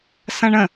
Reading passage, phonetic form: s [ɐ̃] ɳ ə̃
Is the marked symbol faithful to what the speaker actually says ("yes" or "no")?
yes